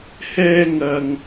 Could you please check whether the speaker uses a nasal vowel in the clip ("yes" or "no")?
no